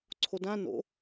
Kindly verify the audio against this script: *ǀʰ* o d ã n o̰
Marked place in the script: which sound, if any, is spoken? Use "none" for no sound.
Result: ǀʰ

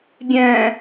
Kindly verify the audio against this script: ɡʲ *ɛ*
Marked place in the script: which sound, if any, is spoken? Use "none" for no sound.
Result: ɛ̃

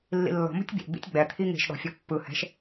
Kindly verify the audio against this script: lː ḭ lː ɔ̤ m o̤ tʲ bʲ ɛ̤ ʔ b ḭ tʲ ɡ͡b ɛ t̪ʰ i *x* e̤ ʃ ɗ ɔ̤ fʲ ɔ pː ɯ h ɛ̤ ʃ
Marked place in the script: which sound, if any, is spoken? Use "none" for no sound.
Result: ŋ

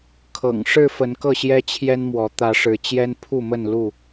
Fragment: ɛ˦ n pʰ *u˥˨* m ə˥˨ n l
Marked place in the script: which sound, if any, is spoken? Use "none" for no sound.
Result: u˥˨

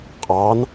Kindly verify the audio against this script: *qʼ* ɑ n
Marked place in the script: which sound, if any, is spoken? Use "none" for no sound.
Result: qʼ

